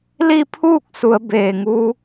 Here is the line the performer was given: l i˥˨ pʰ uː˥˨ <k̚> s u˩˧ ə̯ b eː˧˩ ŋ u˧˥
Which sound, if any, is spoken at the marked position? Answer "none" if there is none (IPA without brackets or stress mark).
k̚